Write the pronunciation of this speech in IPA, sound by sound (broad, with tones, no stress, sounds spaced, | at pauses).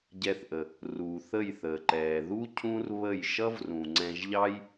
ɟ ɛ˧ θ ʔ ə˨ | r uː˨ θ ə˦˨ j θ əː˨ ǃ ɛː˨ ð u˦ cʰ ũ˦ r β ə˦˨ j ʃ ʌ˦ v r ũ˨ ŋ͡ǀ ɛ̃˧ ʒ ʎ ɑ˦ j